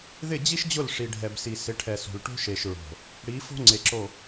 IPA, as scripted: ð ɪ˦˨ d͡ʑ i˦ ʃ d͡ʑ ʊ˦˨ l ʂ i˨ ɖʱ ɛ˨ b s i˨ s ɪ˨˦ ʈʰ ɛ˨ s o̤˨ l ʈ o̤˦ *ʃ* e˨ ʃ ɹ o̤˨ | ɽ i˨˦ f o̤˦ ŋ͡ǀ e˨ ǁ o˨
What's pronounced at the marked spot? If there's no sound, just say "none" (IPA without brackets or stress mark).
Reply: ʃ